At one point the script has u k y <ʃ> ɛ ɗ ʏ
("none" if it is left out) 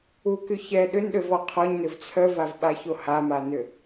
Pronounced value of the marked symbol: ç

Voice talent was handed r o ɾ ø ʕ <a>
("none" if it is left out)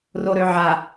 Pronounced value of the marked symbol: a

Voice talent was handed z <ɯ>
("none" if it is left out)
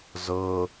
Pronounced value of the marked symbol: ɤ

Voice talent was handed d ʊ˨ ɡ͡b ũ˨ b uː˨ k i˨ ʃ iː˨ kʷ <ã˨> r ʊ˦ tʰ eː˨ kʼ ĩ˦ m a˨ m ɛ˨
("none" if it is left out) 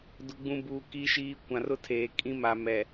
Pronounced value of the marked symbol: ã˨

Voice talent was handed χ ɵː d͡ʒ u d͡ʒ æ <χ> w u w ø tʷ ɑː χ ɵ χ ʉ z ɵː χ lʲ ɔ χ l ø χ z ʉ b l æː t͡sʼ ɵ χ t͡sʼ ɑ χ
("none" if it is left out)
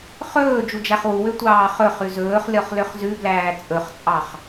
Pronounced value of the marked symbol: χ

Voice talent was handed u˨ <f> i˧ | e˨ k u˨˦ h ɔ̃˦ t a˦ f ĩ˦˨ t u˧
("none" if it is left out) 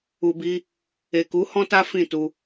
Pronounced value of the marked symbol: b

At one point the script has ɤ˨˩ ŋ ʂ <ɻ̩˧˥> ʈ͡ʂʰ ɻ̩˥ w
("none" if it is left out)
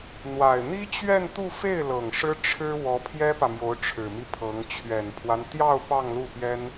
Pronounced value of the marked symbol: ɻ̩˥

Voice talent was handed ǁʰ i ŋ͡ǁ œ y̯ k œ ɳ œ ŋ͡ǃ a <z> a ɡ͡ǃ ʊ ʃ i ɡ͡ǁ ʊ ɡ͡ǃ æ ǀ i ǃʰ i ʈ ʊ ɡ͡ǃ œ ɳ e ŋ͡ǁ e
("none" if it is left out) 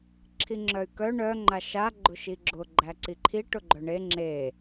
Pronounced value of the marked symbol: ʃ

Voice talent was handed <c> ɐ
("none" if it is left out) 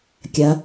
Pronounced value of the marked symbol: kʲ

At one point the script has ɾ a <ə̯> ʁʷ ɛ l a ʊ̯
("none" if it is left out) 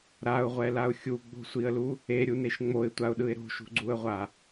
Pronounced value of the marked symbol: ʊ̯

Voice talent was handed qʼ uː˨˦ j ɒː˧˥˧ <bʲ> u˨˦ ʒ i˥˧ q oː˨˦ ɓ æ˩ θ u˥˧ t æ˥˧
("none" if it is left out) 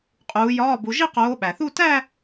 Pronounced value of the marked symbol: b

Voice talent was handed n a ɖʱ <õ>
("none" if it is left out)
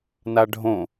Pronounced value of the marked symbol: õ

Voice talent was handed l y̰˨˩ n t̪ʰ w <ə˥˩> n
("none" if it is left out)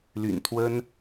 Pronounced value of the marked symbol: ə˥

